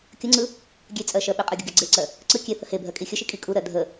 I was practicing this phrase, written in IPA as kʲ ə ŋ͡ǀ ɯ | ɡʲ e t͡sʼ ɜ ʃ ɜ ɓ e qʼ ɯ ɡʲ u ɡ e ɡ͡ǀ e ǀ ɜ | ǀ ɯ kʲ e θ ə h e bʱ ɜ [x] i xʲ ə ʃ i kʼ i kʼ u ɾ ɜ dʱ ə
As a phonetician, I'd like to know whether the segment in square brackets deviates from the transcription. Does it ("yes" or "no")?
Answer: yes